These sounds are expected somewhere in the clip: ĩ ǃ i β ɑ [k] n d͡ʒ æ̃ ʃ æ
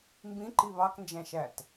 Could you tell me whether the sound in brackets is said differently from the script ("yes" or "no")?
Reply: no